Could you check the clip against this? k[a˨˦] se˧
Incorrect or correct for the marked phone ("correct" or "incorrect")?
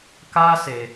incorrect